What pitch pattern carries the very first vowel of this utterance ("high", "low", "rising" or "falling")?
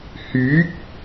rising